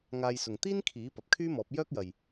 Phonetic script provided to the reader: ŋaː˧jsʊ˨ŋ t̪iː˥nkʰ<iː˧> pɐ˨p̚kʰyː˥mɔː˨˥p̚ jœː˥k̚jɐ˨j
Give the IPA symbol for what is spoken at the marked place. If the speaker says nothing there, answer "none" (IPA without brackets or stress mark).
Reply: iː˨˥